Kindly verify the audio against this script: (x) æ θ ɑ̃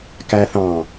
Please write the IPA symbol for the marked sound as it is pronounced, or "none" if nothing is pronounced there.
k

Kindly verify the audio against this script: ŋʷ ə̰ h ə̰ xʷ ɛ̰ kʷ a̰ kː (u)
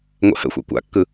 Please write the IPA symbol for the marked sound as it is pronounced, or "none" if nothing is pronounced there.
ɯ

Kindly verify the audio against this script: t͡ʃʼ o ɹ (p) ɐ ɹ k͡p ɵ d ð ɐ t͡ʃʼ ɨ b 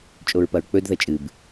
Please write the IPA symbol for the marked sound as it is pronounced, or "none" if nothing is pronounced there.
p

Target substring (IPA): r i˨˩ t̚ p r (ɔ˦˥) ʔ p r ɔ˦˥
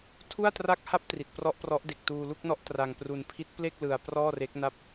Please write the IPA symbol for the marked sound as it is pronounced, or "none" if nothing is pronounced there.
ɔ˦˥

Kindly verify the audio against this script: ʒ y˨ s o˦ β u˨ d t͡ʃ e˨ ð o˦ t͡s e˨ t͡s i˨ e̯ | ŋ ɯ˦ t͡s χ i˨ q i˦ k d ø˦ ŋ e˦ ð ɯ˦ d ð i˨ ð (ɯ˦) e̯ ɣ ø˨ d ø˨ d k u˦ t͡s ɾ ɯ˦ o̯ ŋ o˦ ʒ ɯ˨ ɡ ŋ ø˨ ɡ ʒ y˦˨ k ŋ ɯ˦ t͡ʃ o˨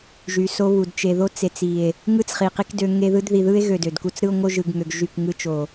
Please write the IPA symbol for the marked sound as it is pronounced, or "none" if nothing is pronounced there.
ɯ˦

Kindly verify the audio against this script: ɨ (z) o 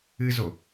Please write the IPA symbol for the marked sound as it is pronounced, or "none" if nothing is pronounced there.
z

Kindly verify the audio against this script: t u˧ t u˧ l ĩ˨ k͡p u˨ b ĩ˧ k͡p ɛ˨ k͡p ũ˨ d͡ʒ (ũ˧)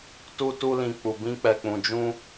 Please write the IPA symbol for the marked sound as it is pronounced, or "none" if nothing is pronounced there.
ũ˧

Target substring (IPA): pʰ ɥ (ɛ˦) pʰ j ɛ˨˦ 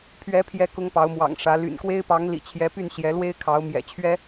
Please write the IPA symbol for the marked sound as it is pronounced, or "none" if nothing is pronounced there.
ɛ˨˦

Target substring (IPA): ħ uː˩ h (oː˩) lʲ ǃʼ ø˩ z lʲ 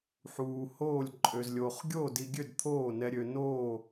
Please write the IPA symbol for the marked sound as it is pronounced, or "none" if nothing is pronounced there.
oː˥˩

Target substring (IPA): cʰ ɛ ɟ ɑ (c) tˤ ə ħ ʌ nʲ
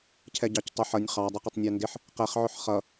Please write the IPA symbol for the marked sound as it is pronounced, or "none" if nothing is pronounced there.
c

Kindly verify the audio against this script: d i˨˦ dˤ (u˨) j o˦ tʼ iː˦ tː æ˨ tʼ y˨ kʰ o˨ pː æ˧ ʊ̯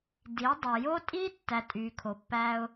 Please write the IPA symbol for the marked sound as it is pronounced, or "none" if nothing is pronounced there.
u˨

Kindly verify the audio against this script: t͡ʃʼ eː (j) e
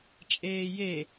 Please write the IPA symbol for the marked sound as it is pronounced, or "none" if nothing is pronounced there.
j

